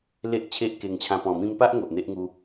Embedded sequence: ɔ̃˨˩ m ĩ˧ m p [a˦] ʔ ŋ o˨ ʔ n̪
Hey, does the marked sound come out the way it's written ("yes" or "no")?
yes